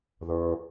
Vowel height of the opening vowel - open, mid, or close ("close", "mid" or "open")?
mid